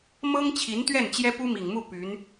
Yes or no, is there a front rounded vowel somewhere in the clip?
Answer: yes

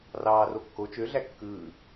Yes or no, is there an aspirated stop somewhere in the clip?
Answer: no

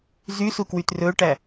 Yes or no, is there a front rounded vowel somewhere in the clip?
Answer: yes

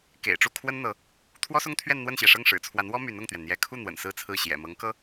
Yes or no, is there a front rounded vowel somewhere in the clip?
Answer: yes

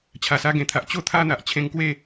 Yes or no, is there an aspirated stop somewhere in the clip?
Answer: yes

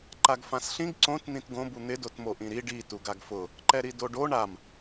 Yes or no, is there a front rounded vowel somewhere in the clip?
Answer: no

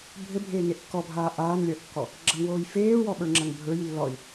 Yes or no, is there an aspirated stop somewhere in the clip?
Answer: no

